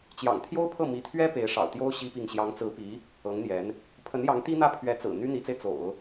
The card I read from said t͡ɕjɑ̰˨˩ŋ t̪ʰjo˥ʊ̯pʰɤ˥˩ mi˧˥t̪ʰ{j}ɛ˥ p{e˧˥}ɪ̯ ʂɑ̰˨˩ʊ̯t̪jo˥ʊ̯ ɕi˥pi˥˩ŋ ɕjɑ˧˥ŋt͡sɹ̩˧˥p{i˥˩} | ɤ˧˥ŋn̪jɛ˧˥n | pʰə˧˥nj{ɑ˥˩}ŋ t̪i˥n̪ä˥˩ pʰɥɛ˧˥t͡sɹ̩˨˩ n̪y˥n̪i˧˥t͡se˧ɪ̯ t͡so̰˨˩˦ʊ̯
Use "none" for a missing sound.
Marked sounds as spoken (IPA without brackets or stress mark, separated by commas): ɥ, e˧˥, i˧˥, ɑ˧˥